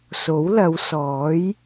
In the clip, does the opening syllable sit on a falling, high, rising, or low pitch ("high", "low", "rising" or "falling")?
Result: rising